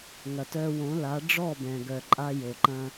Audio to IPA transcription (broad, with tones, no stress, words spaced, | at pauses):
ŋɐ˩tœ˧wõ˩˥la˩˥ ɖ͡ʐɔ˥˩bɛ̃˩ɡœ˩ǃʼa˧ jo˩ǃɐ̃˧